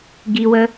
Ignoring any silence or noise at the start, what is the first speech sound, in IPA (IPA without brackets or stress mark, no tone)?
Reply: ɡ